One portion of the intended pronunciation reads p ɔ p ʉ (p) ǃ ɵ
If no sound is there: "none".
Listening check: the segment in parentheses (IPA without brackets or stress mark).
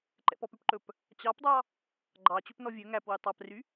p